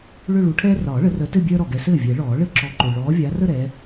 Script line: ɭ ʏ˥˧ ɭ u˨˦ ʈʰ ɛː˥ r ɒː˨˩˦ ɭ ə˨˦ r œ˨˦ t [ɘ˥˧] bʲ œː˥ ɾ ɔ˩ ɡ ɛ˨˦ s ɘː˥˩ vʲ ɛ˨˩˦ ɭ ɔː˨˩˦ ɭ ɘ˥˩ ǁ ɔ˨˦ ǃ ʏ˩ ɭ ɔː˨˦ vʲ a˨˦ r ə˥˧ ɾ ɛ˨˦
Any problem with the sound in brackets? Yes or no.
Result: no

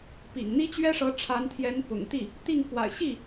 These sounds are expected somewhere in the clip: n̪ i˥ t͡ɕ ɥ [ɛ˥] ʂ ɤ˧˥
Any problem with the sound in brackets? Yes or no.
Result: no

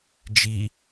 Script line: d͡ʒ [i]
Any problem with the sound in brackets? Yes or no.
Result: no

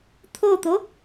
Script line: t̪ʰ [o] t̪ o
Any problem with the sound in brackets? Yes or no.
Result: no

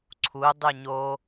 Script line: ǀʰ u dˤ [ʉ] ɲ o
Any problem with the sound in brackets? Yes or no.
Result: no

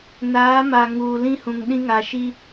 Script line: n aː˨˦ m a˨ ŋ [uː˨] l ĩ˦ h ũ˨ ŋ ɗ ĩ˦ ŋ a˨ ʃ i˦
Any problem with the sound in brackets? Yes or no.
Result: no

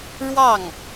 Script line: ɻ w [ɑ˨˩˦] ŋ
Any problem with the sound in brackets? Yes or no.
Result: yes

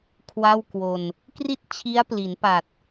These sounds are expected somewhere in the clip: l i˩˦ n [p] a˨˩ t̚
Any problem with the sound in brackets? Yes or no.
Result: no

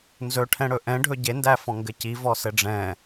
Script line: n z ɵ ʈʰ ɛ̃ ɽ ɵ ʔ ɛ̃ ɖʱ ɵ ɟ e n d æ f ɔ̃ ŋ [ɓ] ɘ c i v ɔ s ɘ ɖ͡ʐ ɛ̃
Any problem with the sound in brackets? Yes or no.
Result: yes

